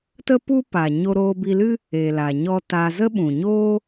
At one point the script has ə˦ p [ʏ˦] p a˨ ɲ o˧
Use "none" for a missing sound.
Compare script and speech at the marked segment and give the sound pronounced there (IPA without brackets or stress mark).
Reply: u˦